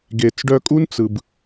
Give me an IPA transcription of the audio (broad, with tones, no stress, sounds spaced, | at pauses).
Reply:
ɡ e˨ t͡s ɖ œ˧ kʼ u˦ n t͡s ɯ˨ b